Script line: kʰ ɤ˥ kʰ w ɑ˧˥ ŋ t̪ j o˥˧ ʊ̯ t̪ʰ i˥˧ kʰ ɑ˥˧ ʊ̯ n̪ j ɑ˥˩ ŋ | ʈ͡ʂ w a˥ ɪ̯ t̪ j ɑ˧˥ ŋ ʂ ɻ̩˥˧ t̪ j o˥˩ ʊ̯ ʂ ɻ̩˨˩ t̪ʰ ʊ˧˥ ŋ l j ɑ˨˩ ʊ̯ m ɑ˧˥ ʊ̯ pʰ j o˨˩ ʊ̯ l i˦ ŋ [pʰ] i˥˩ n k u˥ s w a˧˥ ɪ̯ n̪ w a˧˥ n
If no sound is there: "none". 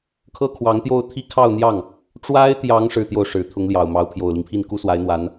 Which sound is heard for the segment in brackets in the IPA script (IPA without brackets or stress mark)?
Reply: pʰ